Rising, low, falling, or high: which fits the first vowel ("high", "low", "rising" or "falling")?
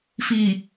low